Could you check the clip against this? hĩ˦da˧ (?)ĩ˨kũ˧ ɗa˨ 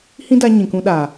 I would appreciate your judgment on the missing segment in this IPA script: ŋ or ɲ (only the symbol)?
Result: ɲ